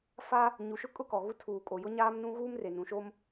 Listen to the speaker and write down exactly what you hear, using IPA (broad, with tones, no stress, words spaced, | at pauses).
fa˦ | ɲu˨ʃʊ˦ kʼʊ˦kɔ˨ɣu˦ tʰuː˨ kʼo˨jʊ˦ɲaː˦mnũ˦ ɣuː˦mre˨nũ˨ʃo˦m